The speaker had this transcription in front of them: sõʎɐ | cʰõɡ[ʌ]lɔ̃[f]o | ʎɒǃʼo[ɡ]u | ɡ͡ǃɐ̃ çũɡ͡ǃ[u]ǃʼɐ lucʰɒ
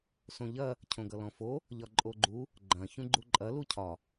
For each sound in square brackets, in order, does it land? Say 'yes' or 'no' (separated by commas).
yes, yes, no, yes